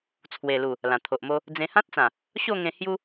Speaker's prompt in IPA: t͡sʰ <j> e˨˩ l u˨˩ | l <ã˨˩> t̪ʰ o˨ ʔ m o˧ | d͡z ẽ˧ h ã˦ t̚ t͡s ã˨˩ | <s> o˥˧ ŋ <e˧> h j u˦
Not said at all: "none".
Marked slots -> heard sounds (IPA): w, ã˨˩, ɕ, ẽ˧

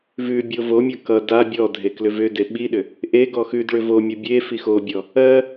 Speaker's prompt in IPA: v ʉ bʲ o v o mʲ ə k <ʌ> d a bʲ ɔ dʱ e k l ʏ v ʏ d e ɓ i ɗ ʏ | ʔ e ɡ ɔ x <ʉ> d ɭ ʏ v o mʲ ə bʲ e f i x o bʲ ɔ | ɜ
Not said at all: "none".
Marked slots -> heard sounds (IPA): ʌ, ʉ

